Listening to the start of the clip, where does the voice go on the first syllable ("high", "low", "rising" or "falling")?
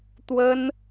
high